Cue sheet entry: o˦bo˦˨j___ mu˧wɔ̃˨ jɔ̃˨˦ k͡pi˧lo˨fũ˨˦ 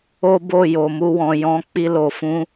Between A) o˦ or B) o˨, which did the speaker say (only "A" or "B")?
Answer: B